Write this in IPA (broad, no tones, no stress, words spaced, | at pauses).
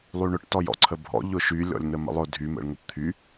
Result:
lˠyɳʊʈ tɔjɔ̰ǀʰəbʱɔ̰ ʎʊʃylʲɔ̰lʲ nəmə̰lˠʊ dʱymə̰ɭ ŋəpt̪ʰy